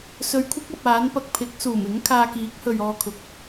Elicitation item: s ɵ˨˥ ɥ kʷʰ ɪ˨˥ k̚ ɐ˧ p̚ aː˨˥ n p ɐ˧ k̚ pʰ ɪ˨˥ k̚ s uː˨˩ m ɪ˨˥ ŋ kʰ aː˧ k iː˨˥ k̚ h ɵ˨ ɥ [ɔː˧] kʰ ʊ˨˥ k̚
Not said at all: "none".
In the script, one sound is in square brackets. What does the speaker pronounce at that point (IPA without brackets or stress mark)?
ɔː˧